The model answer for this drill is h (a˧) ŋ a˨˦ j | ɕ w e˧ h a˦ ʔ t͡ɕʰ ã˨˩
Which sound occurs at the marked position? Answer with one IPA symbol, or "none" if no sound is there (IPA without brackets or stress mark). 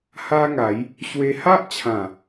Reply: a˦